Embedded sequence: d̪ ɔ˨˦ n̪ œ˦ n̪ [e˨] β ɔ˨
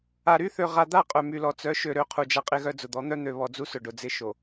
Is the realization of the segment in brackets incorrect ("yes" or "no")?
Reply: yes